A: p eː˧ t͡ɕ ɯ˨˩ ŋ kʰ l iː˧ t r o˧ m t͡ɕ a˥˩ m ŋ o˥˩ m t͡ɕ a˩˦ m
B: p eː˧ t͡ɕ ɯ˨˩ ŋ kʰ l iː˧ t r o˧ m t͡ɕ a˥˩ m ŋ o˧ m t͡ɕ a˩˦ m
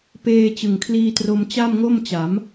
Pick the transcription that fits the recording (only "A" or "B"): A